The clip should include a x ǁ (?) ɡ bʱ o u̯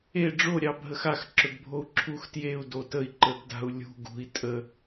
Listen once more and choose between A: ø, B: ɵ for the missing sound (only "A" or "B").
B